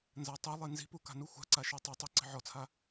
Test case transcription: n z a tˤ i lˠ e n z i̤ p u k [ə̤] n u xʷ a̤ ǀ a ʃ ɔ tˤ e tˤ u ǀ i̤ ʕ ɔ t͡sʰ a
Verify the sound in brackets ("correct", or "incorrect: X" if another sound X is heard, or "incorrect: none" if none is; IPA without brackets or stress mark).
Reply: incorrect: a̤